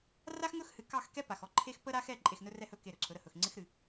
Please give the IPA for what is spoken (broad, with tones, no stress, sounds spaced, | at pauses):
r a˦ x ŋ ɵ˦ x h ɨ˨ k ɑ˦˨ x k ɛ˦ p a˨ x ɔ˦ ǃʰ e˦ x p ə˦ ɾ a˦ x ɛ˦˨ ǃʼ e˨ x n ɵ˦ r ɛ˦˨ h ɵ˦˨ k e˦˨ ɾ ɵ˨ ǀʰ ɵ˨˦ ɾ ə˨ h ɵ˨ x ŋ͡ǀ ɪ˦ x ɾ ɨ˨